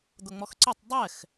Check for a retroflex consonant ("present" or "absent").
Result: absent